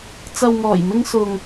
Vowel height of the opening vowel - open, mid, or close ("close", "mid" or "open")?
open